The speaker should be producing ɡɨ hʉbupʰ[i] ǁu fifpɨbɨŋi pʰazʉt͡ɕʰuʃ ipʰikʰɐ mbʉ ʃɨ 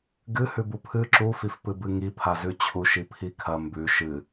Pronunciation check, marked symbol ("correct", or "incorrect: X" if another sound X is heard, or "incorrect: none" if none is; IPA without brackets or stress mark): incorrect: ɨ